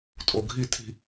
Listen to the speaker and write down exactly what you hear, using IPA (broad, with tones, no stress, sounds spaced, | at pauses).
tʼ o˨ ɡʱ i˦˨ tʰ i̤˦